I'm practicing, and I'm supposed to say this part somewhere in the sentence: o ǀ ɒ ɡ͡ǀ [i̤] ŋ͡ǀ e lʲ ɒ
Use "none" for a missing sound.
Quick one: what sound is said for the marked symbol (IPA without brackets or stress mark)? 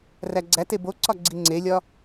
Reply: i